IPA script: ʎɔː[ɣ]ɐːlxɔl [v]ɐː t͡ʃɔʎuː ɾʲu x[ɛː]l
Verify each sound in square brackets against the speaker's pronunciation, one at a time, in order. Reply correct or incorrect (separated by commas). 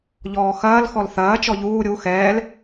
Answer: incorrect, incorrect, correct